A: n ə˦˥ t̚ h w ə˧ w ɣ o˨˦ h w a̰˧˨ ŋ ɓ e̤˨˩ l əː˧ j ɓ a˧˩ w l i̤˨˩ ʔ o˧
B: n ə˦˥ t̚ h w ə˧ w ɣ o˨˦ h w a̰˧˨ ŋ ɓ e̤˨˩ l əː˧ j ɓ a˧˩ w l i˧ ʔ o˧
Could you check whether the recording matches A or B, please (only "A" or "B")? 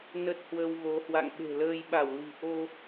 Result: A